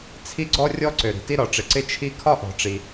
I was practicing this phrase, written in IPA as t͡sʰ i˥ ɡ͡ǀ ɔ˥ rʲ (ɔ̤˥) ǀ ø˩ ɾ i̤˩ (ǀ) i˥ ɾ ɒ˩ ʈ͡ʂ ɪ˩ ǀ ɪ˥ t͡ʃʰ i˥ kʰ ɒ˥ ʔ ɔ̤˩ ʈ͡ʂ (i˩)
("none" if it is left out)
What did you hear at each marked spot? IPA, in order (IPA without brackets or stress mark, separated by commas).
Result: ɔ˥, t, i˩